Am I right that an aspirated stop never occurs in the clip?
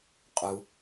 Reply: yes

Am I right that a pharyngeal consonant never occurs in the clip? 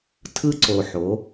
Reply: no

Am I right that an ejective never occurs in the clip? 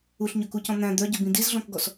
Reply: yes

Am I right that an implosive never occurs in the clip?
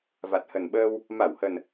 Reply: no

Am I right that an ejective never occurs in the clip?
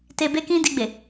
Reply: yes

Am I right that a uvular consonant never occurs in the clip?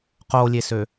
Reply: no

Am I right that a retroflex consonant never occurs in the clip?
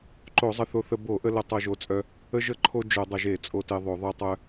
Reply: yes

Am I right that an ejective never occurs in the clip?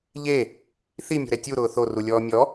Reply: yes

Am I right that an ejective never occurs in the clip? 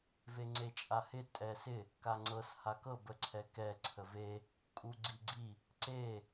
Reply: no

